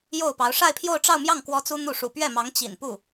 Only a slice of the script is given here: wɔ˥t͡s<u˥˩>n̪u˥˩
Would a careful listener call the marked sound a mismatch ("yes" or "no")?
yes